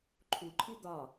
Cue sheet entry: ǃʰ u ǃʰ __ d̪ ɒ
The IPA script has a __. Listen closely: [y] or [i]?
i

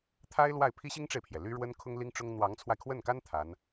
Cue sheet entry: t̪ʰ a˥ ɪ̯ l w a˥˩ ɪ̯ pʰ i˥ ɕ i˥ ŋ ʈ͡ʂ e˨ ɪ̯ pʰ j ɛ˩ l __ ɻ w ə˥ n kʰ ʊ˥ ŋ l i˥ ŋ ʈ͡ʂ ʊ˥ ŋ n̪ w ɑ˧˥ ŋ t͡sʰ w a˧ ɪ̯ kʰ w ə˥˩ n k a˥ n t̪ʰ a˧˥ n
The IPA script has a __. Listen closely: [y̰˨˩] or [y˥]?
y˥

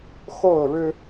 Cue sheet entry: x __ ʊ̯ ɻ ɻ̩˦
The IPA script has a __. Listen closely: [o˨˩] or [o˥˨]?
o˥˨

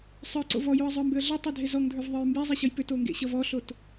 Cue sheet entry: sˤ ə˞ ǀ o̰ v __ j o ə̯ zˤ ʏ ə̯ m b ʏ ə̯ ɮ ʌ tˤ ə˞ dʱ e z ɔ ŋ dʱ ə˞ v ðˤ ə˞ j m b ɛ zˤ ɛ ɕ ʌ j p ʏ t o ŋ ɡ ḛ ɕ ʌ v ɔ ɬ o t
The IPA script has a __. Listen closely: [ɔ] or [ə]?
ɔ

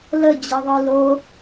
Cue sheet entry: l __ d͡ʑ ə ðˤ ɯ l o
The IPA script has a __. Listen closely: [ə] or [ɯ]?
ə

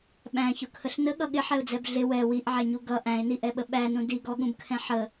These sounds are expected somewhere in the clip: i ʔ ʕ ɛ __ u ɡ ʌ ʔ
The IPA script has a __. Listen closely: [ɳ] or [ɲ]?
ɲ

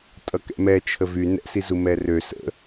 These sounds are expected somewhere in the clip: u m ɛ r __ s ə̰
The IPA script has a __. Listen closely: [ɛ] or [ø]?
ø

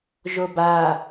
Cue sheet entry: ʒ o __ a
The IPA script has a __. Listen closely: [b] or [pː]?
b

